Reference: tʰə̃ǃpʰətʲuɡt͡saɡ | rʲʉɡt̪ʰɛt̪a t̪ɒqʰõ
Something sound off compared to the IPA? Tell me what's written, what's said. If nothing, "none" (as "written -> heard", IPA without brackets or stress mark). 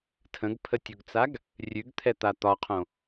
ǃ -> ɡ